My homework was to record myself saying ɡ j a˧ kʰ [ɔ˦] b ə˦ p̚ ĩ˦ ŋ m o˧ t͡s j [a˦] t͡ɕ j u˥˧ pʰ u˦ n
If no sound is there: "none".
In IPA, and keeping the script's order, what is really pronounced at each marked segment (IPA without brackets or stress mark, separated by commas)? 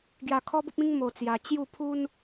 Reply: ɔ˦, a˧